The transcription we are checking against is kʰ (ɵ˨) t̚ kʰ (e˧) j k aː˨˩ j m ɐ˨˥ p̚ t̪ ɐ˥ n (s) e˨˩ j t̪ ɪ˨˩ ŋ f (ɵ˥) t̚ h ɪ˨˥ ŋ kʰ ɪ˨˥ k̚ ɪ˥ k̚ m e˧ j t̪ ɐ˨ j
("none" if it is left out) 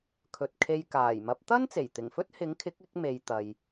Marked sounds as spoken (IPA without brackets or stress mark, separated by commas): ɵ˨, e˧, t͡s, ɵ˥